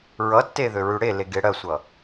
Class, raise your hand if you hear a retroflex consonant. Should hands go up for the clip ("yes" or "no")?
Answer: yes